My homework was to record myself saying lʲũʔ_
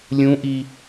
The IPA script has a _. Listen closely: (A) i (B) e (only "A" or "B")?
A